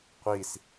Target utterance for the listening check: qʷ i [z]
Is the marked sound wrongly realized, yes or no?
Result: yes